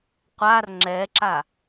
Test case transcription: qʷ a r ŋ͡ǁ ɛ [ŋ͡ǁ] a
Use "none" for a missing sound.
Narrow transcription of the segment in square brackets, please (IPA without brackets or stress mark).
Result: ǁ